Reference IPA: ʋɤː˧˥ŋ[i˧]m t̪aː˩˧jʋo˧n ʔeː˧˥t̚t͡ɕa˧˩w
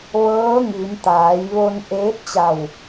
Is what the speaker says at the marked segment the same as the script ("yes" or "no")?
no